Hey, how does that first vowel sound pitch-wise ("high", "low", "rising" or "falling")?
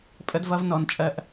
high